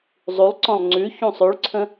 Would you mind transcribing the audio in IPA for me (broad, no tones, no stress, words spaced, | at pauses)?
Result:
zˤulˠǀɔ̃lˠ ŋ͡ǀʉ çũsˤʉɭǀʰə̃